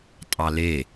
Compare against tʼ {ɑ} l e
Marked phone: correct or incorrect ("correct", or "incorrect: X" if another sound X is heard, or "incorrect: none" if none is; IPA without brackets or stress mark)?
correct